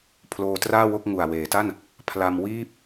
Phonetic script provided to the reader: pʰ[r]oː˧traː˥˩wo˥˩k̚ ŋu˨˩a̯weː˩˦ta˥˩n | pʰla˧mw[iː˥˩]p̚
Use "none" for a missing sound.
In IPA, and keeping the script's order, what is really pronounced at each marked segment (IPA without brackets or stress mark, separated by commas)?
l, iː˥˩